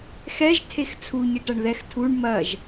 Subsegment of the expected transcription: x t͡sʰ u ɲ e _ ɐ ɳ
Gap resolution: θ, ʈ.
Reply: ʈ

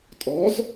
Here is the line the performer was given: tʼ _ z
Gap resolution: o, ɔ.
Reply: ɔ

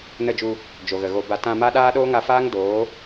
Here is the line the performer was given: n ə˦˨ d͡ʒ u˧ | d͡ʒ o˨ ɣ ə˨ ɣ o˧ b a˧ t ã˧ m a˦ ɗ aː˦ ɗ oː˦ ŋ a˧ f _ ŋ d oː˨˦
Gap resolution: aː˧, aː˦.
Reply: aː˦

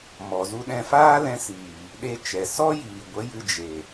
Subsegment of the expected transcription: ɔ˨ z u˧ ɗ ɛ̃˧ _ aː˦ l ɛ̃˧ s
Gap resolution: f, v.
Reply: f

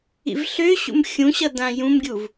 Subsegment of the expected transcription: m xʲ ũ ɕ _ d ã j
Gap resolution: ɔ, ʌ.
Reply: ʌ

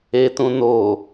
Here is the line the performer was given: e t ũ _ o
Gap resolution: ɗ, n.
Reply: n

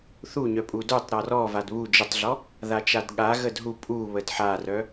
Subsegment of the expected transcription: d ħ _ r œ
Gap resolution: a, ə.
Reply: a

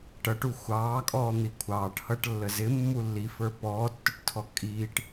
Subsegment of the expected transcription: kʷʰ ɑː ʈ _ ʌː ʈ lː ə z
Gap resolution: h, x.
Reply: h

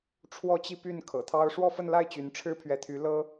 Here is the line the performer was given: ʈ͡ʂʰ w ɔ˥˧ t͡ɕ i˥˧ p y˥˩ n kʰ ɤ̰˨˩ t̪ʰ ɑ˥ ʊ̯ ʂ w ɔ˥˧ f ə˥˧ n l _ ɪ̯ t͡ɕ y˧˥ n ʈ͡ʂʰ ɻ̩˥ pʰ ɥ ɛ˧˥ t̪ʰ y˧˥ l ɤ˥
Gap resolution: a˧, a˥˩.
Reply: a˥˩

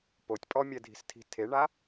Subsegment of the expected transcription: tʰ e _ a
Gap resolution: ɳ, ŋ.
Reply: ɳ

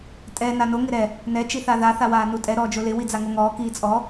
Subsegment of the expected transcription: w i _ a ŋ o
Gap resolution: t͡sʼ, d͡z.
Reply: d͡z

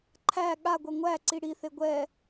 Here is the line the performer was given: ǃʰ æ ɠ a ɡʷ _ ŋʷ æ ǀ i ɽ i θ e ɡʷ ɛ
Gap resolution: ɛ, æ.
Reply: ɛ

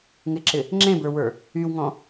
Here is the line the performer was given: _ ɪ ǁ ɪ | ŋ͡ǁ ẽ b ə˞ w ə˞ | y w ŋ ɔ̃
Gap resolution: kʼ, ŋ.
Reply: ŋ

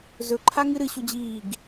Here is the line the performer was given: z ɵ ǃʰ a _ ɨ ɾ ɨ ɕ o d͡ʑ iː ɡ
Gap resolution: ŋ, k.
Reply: ŋ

